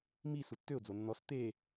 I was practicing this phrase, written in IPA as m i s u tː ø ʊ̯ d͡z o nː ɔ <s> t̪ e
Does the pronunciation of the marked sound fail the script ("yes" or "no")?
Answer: no